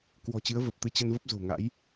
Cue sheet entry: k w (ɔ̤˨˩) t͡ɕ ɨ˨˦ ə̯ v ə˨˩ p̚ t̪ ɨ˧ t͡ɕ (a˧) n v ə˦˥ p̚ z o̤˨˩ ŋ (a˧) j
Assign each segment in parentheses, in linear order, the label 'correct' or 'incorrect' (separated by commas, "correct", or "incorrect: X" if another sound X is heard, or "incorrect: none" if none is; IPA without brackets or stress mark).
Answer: correct, incorrect: ə˧, incorrect: a̰˧˥